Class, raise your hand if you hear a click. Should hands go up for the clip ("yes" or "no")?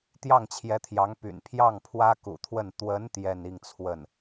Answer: no